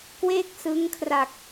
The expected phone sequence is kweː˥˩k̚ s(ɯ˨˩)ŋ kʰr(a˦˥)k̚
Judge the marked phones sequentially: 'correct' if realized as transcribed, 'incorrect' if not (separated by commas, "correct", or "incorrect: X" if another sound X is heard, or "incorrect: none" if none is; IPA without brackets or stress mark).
incorrect: ɯ˦˥, incorrect: a˨˩